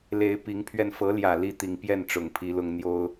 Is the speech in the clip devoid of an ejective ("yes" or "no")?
yes